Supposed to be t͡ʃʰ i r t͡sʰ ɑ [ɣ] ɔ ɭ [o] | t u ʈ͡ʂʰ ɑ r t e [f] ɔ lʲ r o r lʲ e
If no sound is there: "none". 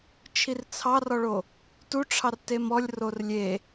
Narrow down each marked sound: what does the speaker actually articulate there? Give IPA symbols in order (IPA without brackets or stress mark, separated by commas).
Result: r, o, m